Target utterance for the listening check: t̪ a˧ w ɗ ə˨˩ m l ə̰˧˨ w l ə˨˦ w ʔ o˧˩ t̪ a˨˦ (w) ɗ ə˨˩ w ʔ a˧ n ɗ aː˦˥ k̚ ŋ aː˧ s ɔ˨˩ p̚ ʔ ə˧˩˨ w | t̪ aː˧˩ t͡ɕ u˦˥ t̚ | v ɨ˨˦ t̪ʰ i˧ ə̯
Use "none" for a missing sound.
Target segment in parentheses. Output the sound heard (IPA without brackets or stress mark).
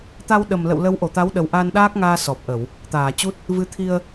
w